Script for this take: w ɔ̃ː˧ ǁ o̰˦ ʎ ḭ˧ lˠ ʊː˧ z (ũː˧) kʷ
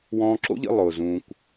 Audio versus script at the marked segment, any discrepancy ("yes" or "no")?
no